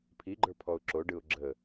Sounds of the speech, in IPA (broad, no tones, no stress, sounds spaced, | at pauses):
pʰ i ɡ͡ǃ ə˞ pʰ ɔ ʊ̯ ǁ o ɖ ɯ ʊ̯ ɡ͡ǁ ə